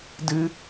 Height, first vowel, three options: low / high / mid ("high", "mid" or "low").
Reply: high